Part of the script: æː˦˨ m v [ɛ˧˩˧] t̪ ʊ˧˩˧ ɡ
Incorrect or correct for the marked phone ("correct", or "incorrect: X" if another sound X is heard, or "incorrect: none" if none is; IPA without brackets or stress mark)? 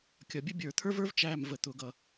incorrect: ə˧˩˧